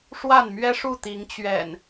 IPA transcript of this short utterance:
ʂ w a˥˨ n m ɥ ɛ˦ ʂ u˥˨ t̪ i˨˦ ŋ t͡ɕ ɥ ɛ̰˨˩ n

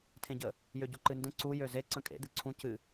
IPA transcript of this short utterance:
tʰ ẽ ɟ ə | j ø ɟ u ǃ ɨ n d ə̃ ǀ u j ø z e ǀ ə̃ kʼ ḛ d̪ ɨ ǀʰ ũ c ɨ

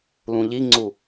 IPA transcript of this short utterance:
l ũ ʎ i ŋ͡ǀ u

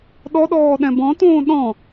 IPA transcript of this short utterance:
ɗ ɔ ɗ ɔː ɗ ɛ̃ b ɔ̃ t õː ɗ ɔ̃

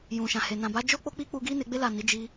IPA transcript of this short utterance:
j ũ˨ ʃ ã˨ h e˨ n ã˨ b a˨˦ d͡ʒ o˦ k͡p o˦ k͡p i˦ k͡p u˧ ɡ i˦ n e˧ ɡ͡b e˦ l a˦˨ n i˨˦ d͡ʒ i˧

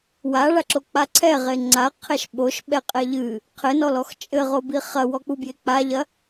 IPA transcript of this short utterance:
w a ɭ a ǁ o k͡p a ǀʰ ɛ ʁ e ŋ͡ǀ a qʰ ɛ ʃ ɓ o ʃ ɓ ɛ qʼ ɛ ʎ ɨ | qʰ ɘ n ɔ l ɔ x t͡ʃʼ ɘ ʁ o b i χ ɐ w ɔ k͡p u b j e k͡p a ʎ ɐ

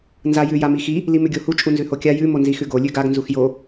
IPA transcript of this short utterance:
n z a j ʉ j a m i x i | l i m ʉ ɡʲ o h u t͡ʃʼ u n z ʉ h o kʲ a j ʉ m o n z i x ʉ ɡ o lʲ ʉ ɡ a ɡ n z u x j o

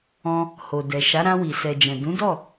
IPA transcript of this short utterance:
ɔ̃˧ | h o˨ d ɛ˨ ʃ a˨˦ ɾ ã˧ w i˨ s ɛ˨ d͡ʒ ɛ̃˨ d ũ˨˦ d ɔ˦˨

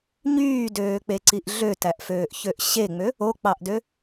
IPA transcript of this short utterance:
ɲ yː d øː k͡p e ǀ i ʔ ɮ ø t æ ʔ f øː ʔ ç ø ʔ ɕ e ŋ͡m ø | o k͡p ɑ ʔ d ø

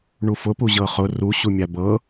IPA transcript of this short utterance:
ɳ u f ʊ p u ʑ ɤ χ ʊ r u ɕ u mʲ a b ɤ

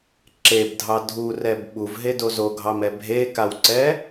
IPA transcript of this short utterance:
ǁ e b dʱ ɑ dʱ u r ɛ b ɓ u v ɦ e d o z o ɡʱ ɑ m ɛ bʱ e k a w ǀ ɛ

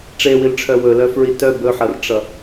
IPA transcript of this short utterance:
ʈ͡ʂ e w i l ʈ͡ʂʰ œ w ɵ l œ f ɹ i t œ b ɵ ħ ʌ r ʈ͡ʂ ʌ

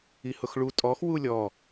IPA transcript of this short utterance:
i h ʊ x ɭ u tʼ ɔ x w u lʲ ɔ

